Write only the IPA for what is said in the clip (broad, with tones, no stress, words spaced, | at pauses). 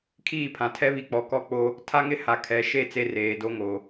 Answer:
kʰiː˦˨pʰã˨tʰɛ˦βi˨ k͡pɔ˨kɔ˦ k͡po˦ | tʰa˦ŋɪ˦ ha˨kʰɛ˨ʃe˦˨ t͡se˦reː˨ do˦ŋo˨